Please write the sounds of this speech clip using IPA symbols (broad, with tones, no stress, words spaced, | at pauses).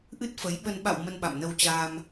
ʔɨ˦˥t̚fə˨˦jɓə˧n ɓa̰˧˨w mə˧nɓa̰˧˨mnə˧w t͡ɕaː˧m